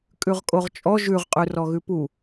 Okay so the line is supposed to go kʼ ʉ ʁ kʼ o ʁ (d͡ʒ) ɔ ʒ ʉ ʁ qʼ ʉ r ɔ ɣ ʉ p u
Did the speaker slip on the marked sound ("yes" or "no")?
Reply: yes